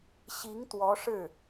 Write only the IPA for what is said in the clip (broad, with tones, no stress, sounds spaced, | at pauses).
ɕ i˧˥ ŋ t̪ w ɔ˧˥ ʂ ɻ̩˥˩